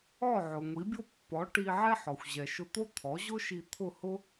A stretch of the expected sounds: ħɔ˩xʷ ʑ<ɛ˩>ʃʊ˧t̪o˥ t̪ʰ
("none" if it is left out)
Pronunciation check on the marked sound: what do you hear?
ɛ˩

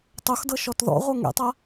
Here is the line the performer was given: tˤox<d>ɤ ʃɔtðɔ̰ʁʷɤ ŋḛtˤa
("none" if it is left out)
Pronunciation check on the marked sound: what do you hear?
d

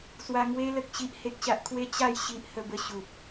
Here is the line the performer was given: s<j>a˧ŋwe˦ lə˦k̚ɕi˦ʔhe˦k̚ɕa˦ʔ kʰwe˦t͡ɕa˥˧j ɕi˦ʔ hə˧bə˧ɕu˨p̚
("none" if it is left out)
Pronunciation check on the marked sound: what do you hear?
w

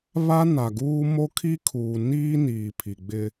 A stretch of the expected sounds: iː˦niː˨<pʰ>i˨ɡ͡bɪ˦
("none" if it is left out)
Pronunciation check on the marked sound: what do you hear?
pʰ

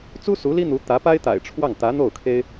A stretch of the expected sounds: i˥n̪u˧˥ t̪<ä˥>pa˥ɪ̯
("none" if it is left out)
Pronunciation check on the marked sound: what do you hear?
ä˧˥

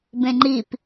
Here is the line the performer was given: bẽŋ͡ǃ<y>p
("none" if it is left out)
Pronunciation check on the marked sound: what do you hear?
i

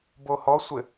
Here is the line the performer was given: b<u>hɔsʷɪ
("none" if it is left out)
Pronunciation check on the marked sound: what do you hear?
o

